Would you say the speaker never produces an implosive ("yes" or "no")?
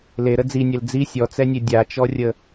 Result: yes